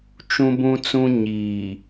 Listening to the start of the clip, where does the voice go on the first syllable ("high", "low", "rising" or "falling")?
high